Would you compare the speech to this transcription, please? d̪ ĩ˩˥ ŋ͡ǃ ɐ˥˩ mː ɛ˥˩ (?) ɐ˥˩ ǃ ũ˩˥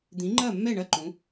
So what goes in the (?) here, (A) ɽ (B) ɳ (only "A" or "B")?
B